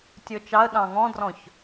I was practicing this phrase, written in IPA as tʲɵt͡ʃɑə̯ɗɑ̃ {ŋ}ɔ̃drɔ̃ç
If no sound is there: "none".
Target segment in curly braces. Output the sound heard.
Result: ŋ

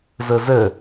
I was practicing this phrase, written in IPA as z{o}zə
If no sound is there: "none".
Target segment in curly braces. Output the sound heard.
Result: ɤ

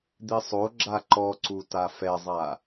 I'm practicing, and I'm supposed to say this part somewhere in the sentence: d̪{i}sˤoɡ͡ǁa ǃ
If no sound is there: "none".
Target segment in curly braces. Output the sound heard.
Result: i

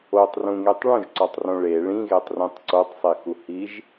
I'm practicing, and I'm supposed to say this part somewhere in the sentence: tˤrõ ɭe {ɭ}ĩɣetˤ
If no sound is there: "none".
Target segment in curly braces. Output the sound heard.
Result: ɭ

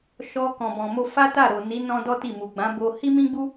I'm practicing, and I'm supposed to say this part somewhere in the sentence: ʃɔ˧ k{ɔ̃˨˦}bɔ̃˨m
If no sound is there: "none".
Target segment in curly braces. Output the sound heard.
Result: ɔ̃˨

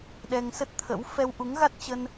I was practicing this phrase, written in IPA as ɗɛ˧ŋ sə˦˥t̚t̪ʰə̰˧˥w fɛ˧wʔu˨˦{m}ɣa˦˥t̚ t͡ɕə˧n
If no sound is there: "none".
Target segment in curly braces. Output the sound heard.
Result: ŋ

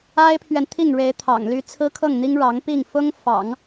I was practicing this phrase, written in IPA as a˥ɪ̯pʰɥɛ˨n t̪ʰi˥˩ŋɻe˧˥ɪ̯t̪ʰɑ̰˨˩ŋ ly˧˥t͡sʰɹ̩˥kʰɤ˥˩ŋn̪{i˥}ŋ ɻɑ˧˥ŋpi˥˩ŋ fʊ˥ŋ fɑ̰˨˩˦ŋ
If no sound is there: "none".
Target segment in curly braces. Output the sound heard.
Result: i˥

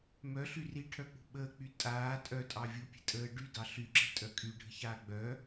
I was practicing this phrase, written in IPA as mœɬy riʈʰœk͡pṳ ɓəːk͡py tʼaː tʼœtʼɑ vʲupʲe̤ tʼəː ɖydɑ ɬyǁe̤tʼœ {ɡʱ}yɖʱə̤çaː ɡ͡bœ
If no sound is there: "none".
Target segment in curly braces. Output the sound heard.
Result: kʼ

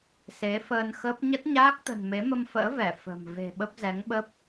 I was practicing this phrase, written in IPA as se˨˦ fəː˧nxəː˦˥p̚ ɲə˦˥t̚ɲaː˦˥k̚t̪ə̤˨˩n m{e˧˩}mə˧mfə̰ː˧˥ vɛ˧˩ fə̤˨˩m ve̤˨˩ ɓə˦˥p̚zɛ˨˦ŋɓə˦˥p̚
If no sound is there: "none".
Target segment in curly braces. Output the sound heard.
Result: e˨˦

